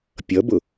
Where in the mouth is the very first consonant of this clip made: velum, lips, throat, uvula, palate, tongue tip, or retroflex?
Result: lips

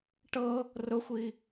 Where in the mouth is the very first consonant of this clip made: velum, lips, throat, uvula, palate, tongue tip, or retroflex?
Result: retroflex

